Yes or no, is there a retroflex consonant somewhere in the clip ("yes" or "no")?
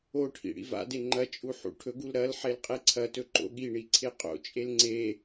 yes